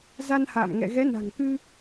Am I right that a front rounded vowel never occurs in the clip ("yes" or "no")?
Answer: yes